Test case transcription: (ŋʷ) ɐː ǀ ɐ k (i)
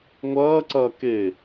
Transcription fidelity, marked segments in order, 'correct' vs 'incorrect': correct, incorrect

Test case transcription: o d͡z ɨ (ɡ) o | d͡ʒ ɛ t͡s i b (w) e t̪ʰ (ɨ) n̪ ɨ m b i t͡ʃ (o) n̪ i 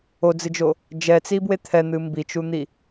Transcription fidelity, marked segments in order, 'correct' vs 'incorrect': incorrect, correct, incorrect, incorrect

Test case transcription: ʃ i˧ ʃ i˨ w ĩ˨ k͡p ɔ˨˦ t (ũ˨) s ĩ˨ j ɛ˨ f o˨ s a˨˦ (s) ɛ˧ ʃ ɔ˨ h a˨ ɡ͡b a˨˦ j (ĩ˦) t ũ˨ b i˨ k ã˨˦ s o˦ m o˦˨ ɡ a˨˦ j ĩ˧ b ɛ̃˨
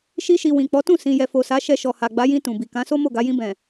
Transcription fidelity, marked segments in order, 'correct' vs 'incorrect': incorrect, incorrect, incorrect

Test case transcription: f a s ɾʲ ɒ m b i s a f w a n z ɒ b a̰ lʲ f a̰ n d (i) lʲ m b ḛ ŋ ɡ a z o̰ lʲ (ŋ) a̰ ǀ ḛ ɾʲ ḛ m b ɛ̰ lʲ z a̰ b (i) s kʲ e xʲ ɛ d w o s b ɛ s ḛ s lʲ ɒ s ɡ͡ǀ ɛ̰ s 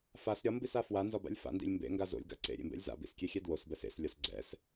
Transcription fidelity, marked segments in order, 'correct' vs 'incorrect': incorrect, incorrect, incorrect

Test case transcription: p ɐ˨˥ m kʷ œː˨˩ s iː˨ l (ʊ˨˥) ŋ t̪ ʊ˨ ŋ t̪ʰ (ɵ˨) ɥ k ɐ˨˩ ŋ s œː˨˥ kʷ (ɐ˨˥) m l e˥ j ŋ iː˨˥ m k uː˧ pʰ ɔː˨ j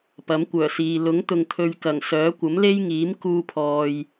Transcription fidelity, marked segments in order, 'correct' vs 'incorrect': correct, incorrect, correct

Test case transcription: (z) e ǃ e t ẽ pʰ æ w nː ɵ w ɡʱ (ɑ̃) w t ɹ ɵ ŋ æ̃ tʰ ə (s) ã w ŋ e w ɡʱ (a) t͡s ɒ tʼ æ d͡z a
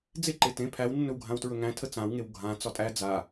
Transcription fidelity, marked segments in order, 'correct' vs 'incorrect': incorrect, incorrect, incorrect, incorrect

